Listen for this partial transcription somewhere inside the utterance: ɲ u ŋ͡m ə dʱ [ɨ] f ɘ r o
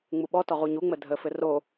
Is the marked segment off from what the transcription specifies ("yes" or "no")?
yes